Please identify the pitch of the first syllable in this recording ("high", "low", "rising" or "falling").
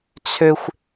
high